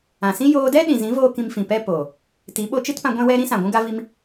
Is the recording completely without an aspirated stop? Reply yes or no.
yes